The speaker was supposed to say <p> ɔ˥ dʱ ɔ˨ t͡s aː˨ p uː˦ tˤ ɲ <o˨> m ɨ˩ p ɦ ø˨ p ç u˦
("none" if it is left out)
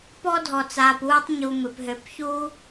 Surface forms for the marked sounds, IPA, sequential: p, u˨

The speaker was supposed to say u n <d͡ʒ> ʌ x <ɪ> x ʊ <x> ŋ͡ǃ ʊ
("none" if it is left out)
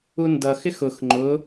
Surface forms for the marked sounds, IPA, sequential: d, ɪ, x

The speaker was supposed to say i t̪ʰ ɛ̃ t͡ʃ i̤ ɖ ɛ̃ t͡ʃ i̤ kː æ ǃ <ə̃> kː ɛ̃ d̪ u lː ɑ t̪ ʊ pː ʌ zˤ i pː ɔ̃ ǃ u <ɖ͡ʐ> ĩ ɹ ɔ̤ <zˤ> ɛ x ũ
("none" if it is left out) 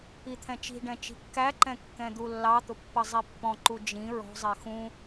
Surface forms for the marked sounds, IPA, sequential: ɛ̃, d͡ʒ, zˤ

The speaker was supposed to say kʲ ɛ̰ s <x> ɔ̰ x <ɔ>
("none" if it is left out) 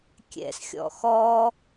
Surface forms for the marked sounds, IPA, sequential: xʲ, ɔ

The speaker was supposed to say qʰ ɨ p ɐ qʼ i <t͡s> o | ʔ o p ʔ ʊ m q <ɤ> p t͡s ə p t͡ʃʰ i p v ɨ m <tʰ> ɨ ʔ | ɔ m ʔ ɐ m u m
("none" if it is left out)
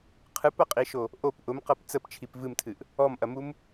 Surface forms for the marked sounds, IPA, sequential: ʃ, ɤ, tʰ

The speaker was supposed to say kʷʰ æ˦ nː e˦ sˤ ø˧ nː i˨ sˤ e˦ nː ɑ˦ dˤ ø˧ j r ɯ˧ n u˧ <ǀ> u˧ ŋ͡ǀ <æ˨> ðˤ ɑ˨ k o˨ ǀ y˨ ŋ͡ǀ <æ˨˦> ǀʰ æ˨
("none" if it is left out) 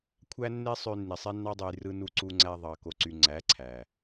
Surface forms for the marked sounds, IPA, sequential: ǀ, æ˧, æ˨˦

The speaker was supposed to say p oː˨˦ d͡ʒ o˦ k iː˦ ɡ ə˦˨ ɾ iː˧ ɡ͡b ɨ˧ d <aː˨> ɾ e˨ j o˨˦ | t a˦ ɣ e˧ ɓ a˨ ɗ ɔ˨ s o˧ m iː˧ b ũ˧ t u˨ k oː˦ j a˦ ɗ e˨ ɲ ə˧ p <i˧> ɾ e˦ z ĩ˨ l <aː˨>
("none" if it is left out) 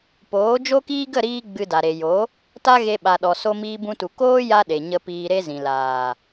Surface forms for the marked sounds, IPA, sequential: a˨, iː˧, aː˨

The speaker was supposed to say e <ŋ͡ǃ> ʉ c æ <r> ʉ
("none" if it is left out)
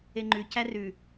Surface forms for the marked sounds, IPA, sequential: ŋ͡ǃ, r

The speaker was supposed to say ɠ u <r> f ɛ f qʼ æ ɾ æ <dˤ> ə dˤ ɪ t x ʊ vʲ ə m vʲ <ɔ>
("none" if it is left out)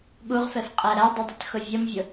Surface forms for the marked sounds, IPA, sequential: ʁ, dˤ, ʊ

